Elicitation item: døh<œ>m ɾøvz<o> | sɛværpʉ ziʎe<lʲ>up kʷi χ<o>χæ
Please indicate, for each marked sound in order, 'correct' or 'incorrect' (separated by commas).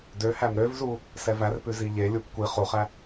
incorrect, incorrect, correct, incorrect